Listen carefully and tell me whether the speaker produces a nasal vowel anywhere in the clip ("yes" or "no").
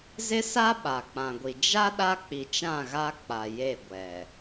yes